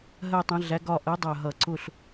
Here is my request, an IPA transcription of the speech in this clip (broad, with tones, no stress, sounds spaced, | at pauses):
ɦ ɜ˦˨ tˤ ə̃˨˥ ɮ æ˨˥ ɡ ɒ˦˨ ʔ ɜ˨˥ dˤ ɜ˨˩ ɦ ʌ˨˩˦ ǀ ʊ˦˨ ɬ